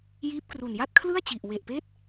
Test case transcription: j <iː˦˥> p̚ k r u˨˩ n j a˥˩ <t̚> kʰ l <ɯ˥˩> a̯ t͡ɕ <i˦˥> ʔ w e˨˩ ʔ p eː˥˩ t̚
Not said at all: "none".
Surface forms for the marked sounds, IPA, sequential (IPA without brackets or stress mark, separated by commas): iː˦˥, t̚, ɯ˥˩, i˨˩